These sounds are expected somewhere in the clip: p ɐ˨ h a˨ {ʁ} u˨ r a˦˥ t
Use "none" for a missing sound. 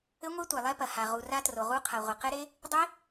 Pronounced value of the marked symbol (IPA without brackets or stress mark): ʁ